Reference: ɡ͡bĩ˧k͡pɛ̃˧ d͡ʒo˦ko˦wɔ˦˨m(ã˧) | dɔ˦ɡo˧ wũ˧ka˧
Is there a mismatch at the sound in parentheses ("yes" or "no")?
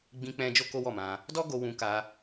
no